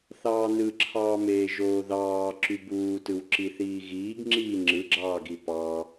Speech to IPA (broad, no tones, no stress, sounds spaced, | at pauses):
θ ɑː n ɯ ǁʰ ɑː m eː ʒ oː ð ɑː ǁ y b uː t ɯ w ǁ i θ iː ɣ iː ɡ ŋ͡ǁ iː ŋ͡ǁ ɯ ɡ͡ǁ ɑː ɡ i p ɑ